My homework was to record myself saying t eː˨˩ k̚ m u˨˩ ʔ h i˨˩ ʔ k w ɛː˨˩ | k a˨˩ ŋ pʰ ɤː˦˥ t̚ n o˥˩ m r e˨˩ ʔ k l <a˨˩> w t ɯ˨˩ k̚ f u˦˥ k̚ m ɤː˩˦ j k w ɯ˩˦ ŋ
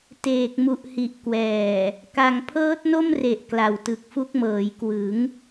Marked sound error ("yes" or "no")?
no